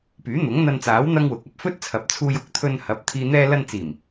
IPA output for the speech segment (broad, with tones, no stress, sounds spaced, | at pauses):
p yː˨˥ n̪ ʊ˨˥ ŋ n̪ ɐ˧ n t͡s aː˨˥ w n̪ ɐ˥ ŋ w ʊ˨˥ k̚ ɐ˥ p̚ f ɵ˥ t̚ t͡sʰ ɐ˨ p̚ t͡sʰ uː˧ j ʊ˨˥ k̚ t̪ʰ ɵ˧ n h ɐ˨˥ p̚ t̪ʰ iː˨ n̪ ɛː˧ l ɐ˧ n t͡s iː˨˩ m